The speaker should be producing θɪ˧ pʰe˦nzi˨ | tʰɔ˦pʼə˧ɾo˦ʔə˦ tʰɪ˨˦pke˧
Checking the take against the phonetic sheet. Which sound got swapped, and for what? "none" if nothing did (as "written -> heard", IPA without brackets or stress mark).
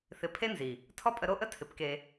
none